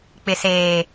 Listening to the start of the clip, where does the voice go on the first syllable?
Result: low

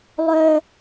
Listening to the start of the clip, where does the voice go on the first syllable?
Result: high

